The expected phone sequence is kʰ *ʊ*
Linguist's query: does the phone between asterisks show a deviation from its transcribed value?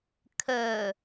yes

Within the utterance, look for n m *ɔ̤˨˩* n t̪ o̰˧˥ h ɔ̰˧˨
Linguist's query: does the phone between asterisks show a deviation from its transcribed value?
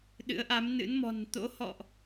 no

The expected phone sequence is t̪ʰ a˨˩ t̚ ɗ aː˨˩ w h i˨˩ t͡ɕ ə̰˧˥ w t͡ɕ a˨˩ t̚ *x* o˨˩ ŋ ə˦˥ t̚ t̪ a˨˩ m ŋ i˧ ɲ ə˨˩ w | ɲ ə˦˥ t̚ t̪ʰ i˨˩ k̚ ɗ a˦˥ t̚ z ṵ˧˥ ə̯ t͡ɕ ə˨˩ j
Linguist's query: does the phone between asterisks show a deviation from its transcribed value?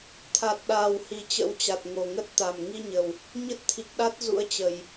yes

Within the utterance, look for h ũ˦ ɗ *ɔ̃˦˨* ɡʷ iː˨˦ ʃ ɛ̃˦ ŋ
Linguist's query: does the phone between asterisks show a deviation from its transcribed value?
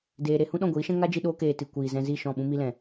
no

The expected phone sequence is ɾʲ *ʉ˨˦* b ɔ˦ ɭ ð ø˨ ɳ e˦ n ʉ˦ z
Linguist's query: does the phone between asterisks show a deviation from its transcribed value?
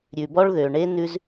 yes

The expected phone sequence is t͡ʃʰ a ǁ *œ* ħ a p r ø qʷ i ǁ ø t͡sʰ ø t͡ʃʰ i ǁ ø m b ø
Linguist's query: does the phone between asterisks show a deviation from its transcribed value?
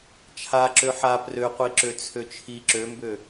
yes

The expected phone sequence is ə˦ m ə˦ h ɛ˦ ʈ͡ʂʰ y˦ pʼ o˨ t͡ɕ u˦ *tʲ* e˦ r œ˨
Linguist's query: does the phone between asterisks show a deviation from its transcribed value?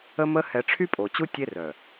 no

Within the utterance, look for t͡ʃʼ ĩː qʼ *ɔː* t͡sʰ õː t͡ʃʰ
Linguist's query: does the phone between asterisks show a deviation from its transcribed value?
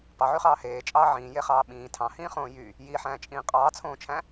yes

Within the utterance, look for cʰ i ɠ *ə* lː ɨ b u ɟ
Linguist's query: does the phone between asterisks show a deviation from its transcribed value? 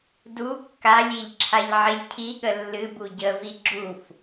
no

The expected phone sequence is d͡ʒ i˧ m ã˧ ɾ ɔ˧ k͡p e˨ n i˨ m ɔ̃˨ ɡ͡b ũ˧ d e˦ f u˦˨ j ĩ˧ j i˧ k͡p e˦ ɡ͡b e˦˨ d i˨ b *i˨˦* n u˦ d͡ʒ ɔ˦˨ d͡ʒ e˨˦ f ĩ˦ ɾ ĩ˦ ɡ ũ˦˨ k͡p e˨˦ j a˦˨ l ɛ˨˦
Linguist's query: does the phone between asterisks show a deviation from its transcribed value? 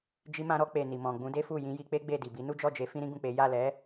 no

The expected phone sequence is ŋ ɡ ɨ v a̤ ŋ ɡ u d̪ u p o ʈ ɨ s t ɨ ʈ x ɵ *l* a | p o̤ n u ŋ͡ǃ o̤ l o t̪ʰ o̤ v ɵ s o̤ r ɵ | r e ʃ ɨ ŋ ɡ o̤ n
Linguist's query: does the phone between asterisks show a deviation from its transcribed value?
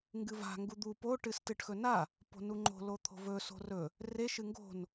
yes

